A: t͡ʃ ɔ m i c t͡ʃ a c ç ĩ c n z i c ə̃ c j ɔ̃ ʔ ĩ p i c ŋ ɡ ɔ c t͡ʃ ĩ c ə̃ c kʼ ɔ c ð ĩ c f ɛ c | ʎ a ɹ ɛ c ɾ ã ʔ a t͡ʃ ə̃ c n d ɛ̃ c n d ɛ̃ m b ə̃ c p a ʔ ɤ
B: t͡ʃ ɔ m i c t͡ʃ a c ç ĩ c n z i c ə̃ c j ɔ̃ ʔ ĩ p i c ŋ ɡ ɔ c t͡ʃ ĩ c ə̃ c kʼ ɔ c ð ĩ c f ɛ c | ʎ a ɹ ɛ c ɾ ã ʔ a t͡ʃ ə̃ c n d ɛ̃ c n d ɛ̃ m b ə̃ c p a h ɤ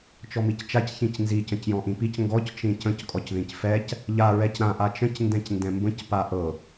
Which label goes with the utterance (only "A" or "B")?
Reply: A